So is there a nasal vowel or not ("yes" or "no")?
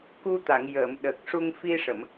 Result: no